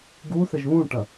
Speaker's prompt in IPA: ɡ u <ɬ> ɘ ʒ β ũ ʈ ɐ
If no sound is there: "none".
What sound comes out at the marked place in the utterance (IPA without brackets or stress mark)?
θ